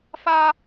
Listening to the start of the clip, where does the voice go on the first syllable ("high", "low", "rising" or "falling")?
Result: high